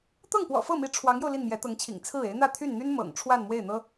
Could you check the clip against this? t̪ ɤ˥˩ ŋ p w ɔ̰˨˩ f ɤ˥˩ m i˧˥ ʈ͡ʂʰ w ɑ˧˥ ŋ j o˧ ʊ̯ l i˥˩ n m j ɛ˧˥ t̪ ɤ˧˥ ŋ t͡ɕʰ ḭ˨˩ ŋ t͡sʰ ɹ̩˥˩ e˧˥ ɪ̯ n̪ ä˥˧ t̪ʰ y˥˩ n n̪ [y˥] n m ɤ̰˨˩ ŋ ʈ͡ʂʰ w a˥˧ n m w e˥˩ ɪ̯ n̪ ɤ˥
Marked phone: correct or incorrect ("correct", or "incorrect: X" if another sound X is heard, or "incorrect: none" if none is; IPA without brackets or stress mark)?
correct